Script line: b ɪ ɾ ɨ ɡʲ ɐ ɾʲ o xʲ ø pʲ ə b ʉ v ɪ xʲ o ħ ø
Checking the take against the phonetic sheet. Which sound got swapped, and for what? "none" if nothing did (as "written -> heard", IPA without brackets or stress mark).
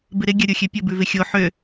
ɨ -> ɪ